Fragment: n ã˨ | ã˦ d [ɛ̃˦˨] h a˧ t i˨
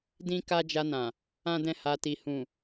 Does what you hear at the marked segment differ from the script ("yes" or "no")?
no